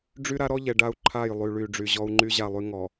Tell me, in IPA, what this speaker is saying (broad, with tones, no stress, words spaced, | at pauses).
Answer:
ɖ͡ʐy˦ɾa˦ɾɔ˦ʎɛ˨ ɖa˦u̯ǃʰa˦˨jlˠy˨ ɭy˨ ɖ͡ʐy˨ʑɔ˦u̯ŋ͡ǃy˦ ʑa˦˨lˠy˦ ŋɔ˨